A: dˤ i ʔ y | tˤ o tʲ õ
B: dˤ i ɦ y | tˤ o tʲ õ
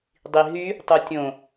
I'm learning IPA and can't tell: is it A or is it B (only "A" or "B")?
B